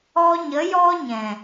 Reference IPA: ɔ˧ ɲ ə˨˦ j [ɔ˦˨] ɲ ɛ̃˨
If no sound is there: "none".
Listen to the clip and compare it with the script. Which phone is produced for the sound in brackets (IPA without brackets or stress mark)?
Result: ɔ˦